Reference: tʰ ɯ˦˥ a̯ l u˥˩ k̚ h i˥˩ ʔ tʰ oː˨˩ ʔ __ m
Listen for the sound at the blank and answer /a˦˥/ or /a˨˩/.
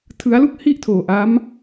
a˦˥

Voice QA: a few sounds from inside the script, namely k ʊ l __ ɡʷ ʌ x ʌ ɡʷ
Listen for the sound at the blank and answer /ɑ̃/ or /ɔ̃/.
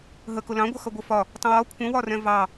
ɑ̃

